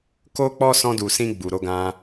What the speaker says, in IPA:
k o˦ k͡p ɔ˦ s ɔ̃˧ d u˨ s ĩ˧ ɡ͡b u˨ ɾ o˨˦ ɡ ã˧

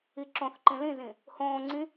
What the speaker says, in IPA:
i ǁ õ θ ǃ ĩ l ĩ z ĩ | h õː ŋ͡ǀ ĩ

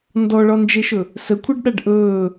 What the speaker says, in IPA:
n d ɔ ɭ ɒ n d͡ʒ e ʃ ɵ | s ə kʷʰ e ɖ ɗ a ɖ ʔ ɵː

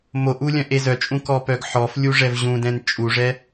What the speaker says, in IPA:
m o ʔ u lʲ œ̃ ʔ e z œ t͡ʃʼ ũ k ɔ p œ ɡ ħ ɔ f lʲ u ʐ ɛ v ʑ ũ d ɛ̃ n t͡ʃʼ u ʐ ɛ

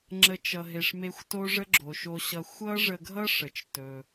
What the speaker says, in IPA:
ŋ͡ǁ ə˥ t͡ʃ ʌ˧ ɦ e˧ ʂ m e˥ xʷ t o˥ ʐ ə˥ ɡ͡ǁ o˩ ʃ o˧ ɕ ʌ˧ xʷ ʌ˥ ʐ ə˧ ɡʱ ʌ˥ ʂ ə˩ t͡ʃ t ɵ˩

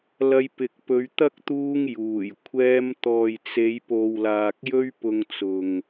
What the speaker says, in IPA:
l ɐ˧ j p ɪ˨ k̚ p ɵ˨˧ ɥ t̪ ɐ˥ k̚ t̪ uː˥ ŋ j uː˨˩ j kʷʰ ɛː˧ m t̪ ɔː˨ j t͡s e˨˧ j p o˨ w l aː˨ k̚ j ɵ˥ ɥ p ʊ˧ ŋ t͡s ʊ˨ ŋ

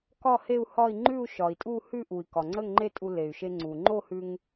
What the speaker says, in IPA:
k ɒ˥˧ h e˥˧ u̯ h ɒ˥˧ i̯ ŋ͡ǃ ʉ˥˧ u̯ ʃ ɒ˩ i̯ tʼ u˥˧ h ʉ˥˧ ʔ u˩ i̯ k ɒ˩ ŋ͡ǀ ə˥˧ ŋ ŋ͡ǃ e˥˧ tʼ u˧ l e˩ y̯ ʃ e˧ ŋ͡ǀ u˩ ŋ͡ǃ o˥˧ h ʉ˧ ŋ

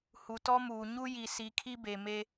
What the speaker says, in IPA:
h u˨ t ɔ˦ m uː˨ ɲ u˦ j i˨ s i˨˦ kʰ i˦ b e˨ m e˦

